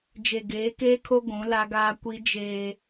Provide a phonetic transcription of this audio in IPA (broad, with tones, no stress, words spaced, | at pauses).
d͡ʒe˨ɡeː˨˦keː˦kʰo˦ ɡʷũ˨˦ la˦ɡaː˦ kʷi˦ d͡ʒeː˦